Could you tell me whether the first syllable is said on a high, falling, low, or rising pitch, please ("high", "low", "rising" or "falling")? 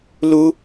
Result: high